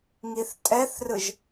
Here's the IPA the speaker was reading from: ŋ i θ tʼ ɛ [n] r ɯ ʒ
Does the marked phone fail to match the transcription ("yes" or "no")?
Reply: yes